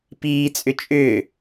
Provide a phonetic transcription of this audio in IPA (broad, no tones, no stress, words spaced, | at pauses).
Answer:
piːt͡sʼʏ t͡ʃʼʏː